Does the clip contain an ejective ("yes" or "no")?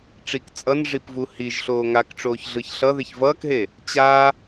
yes